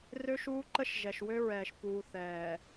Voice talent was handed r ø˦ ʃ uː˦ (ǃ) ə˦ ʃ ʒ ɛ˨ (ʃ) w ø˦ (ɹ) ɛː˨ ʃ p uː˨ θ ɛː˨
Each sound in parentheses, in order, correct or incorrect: correct, correct, correct

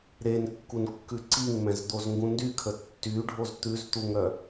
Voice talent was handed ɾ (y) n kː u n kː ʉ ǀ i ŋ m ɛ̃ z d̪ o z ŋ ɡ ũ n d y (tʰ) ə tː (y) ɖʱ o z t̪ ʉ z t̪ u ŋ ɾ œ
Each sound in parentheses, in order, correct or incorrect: incorrect, incorrect, correct

